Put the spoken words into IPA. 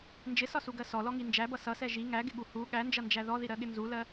n d͡ʒ ɪ s ɒ s u ɡ ɜ s ɔ l ɔ ŋ i n d͡ʒ æ b ʌ s ʌ s ɛ ʒ i ŋ æ ɡ ɪ ɠ u h u ɠ æ n d͡ʒ ʌ n d͡ʒ æ ð ɔ ð i ɾ ɜ ɠ ɪ n z u l ɜ

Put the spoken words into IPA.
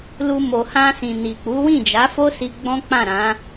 l u˧ m o˨ h ã˧ s ĩ˨ n i˨ k͡p u˨˦ w ĩ˦˨ d͡ʒ a˨˦ f o˦ s i˧ ɡ͡b ɔ̃˦ k͡p ã˦˨ ɾ ã˨˦

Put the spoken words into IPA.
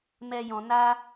m ɛ˧ j ɔ̃˧ n a˦

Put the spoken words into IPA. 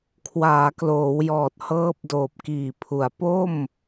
kʰ w aː˩˦ k l oː˩˦ w j ɔː˨˩ t̚ h ɤː˦˥ p̚ d oː˨˩ p̚ k iː˨˩ pʰ u˩˦ a̯ p o˥˩ m

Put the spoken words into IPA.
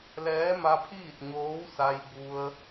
l ɛː˧˥ m a˧ pʰ iː˥˨ t̚ ɲ oː˧˥ w s a˧ j b u˧ ə̯

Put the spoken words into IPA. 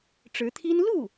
ʈ͡ʂ ɻ̩˧˥ t̪ʰ i˥ n l u˥˩

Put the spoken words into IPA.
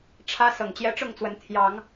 ʈ͡ʂʰ ä˦ s ɤ˨˩ ŋ t͡ɕ j ɛ˦ ʈ͡ʂ ʊ˥˨ ŋ t͡s w ə˨˦ n t̪ʰ j ɑ˨˦ ŋ

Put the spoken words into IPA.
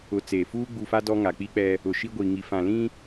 ʊ˨ t͡s eː˨ f uː˦ ɡ͡b uː˨ f a˦ d ɔ˦ ŋ a˨ k͡p i˦ k͡p ɛ˦ | ʊ˨ ʃ i˦ ɡʷ i˨ ŋ i˨ f ã˨ l ĩ˦

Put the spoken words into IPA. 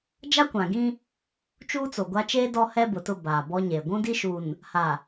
d͡ʒ a˦ kʷ ã˨ ɡ ĩ˦ | t͡ʃ uː˦ t͡s o˨ ɡʷ a˦ t͡ʃ eː˦ d ɔ˦ h ɛ˦ b ʊ˨ t ʊ˦˨ b aː˨ b ɔ˦ ɲ eː˨ ɡʷ ũ˦ d i˦ ʃ u˨ n | h a˨

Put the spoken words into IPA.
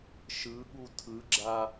ʃ ɯ ɠ u tʰ ɯ ɡ͡ǁ a

